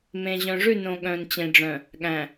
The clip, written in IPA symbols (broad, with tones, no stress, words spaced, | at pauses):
mẽ˨ʑœ̃˨ʐʉ˦˨ nõ˨ ɠœ̃˨nt͡ɕẽ˨ɖ͡ʐœ̃˨ | ɠæ̃˨